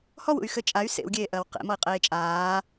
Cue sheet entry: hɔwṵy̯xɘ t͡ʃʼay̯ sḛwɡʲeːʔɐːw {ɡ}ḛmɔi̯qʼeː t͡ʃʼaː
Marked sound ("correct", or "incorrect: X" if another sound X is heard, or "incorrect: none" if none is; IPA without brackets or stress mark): incorrect: q